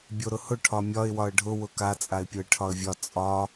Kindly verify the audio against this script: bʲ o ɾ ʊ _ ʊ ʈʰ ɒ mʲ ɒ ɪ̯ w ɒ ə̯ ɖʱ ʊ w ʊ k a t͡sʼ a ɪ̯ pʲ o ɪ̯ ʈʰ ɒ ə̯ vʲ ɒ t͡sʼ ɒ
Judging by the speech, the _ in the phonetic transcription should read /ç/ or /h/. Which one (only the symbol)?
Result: h